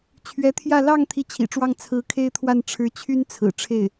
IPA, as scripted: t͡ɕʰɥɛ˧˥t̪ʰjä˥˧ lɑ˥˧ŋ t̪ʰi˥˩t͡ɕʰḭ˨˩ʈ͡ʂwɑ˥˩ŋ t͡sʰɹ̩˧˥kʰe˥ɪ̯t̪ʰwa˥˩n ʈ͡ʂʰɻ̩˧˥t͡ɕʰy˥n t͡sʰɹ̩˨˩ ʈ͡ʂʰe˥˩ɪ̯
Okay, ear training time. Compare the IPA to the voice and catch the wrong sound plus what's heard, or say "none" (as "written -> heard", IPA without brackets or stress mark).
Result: none